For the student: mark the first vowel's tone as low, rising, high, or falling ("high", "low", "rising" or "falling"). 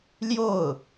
falling